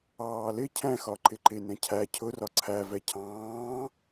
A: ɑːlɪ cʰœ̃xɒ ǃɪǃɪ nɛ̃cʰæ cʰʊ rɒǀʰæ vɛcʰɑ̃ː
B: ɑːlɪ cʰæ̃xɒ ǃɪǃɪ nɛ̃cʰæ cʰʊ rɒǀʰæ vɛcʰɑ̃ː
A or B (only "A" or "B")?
B